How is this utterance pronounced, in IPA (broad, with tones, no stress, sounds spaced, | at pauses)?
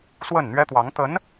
s w ə˥˩ n n̪ ɥ ɛ˥ t̪ w ɑ˧˥ ŋ t̪ ə˧˥ n